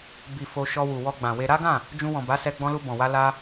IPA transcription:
b i˨ f o˧ ʃ ɔ˧ w u˨ w ɔ˧ ɡ͡b ã˨ w e˧ ɾ a˦ ɡ ã˦˨ | d͡ʒ ũ˧ w ɔ̃˨ b a˨˦ s ɛ˧ ɡ͡b ɔ̃˧ l u˧ b ɔ̃˨ w a˧ l a˦

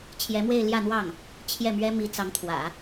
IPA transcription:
t͡ɕʰ j ɛ˧˥ m w e˥˧ ɪ̯ l j ä˥˧ n̪ w ɑ˥˩ ŋ | t͡ɕʰ j ɛ˥˩ m ɥ ɛ˥ m i˧˥ t͡s ɑ˧˥ ŋ t̪ʰ w ä̰˨˩˦

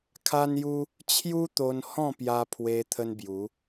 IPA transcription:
kʰ a˦ n j u˦ | t͡ɕʰ j u˦ t̪ o˧ n h ɔ̃˥˧ p j a˧ pʰ w e˧ t̪ʰ ə˦ n b j u˨˦

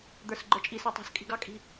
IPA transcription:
d̪ ə˞ s ɡ͡ǃ ə˞ t͡ʃʼ i s ə˞ tˤ ɑ̤ s kʼ i̤ ɡ ɑ kʼ i̤

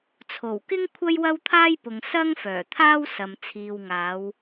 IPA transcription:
t͡sʰ o˨˩ w k ɪ˥ ŋ kʷʰ ɐ˥ j w ɐ˥ w t̪ʰ aː˥ j p ʊ˨ ŋ s ɐ˥ ŋ f œː˨˩ t̪ʰ aː˥ w s ɐ˨ m t͡sʰ iː˨ w ŋ aː˨˧ w

